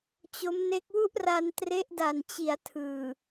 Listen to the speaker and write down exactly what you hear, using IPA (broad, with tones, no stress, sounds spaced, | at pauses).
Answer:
t͡ɕ o˦˥ m n e˦˥ k̚ w u˥˩ ʔ r a˧ n t r e˦˥ ʔ d a˨˩ n t͡ɕ i˩˦ a̯ tʰ ɯː˨˩